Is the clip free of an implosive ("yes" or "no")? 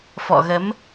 yes